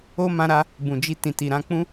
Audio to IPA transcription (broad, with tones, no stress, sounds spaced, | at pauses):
o˦ m ã˧ ɾ a˧ | b ũ˨ d͡ʒ i˧ t ĩ˨ t i˨ ɾ ã˧ k͡p ũ˦